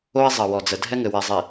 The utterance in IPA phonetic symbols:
o˦ ɪ̯ zˤ ɐ˨ w ɔ˨ d͡z ə˨ dʱ ɛ˦ ŋ ɘ˨ w ɛ˨ zˤ i˨

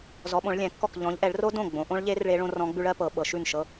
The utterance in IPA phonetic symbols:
z ɔ˨˦ ɓ õ˨˦ ɭ lʲ ɛ̃˨˦ kː ɔ˥˩ k ʎ ɔ̃˨˦ ʎ ʔ ɛ˨˦ ɭ r o˦˥ d õ˥˩ ɡ͡b õ˨˦ ʔ õ˦˥ ɭ ʎ e˦˥ r ɭ e˦˥ ɭ õ˦˥ r ɔ̃˦˥ ɡ͡b ʉ˦˥ ɭ ɜ˦˥ p ɤ˨˦ ɓ ɤ˨˦ ʃ ʉ˥˩ n ʃ ɤ˦˥

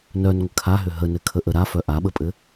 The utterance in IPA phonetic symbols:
n œ n ŋʷ ə kʰ a ɦ ʏ ɦ ə n ɘ kʰ ə ʔ ə ɾ a f œ ʔ a ɓ ə pʼ ɘ

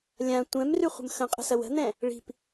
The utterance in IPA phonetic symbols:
lʲ ã tʷ ɛ̃ m r y χʷ ə̤ m x ə̃ qʼ ə̤ s ɐ w ə̤ n̪ ɛ̃ | ɭ i̤ p

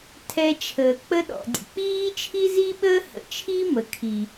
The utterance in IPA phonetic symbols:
tʰ ɛ˧ t͡ʃʰ əː˩ k͡p ə˧ ɗ ɔ̰˩ dʲ ə̰˩ k͡p iː˥ t͡ʃʰ i˥ z i˥ ɓ əː˥ h ə̰˩ t͡ʃʰ i˥ m ə˩ kʰ i˩

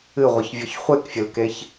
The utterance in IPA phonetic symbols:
ɨ ʁʷ ɨ ç vʲ ɔ ç χʷ e k fʲ ɘ l k e ç

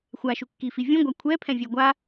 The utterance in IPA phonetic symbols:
xʷ a ʃ u kː i f i vʲ ũ ɡʷ a kʷʰ ɛ pʰ ɛ̃ vʲ ɛ ɡʷ a

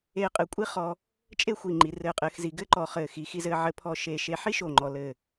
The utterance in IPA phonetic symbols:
eː˧ qʼ ɘ˧˩ kʷʼ i˥ χ ɔː˧ | t͡ʃʼ e˥˧ xʷ i˧˩ ŋ͡ǃ i˩˧ r ɘ˧˩ qʼ ɘː˧ x z i˩˧ ɡ ɘ˥ ǃ ɔ˧˩ χ ɘː˧˩ x i˩˧ x i˧ z ɘː˧ ʕ ɘ˧ pʰ ɔ˧ ʃ e˧˩ ʃ e˧ ħ i˥ ʃ o˧˩ ŋ͡ǃ ɔ˧ l ɘː˥˧

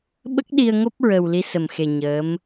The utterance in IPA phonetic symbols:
ɓ ə˦˥ k̚ ɗ i˧ ə̯ ŋ o˦˥ p̚ ɹ ə˨˩ w l i˧˥ s ə˨˩ m x e˨˩ ɲ əː˧˥ m

